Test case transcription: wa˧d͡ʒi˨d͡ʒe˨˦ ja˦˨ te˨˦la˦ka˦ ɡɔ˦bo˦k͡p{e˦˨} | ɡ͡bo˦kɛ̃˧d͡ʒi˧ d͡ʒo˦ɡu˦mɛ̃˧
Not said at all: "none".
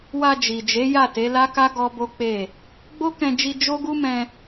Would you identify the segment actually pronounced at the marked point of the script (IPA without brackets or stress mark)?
e˦˨